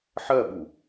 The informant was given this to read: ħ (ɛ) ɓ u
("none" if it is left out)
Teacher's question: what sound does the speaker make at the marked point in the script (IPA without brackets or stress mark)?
ɜ